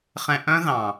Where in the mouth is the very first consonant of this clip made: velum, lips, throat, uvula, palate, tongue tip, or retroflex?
uvula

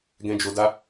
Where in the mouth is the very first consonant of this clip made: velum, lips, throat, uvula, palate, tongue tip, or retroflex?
velum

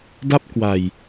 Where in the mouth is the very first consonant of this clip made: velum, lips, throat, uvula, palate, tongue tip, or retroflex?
tongue tip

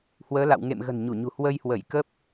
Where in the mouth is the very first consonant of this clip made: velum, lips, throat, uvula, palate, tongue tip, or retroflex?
throat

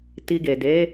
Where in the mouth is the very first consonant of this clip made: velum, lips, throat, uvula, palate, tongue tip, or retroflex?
tongue tip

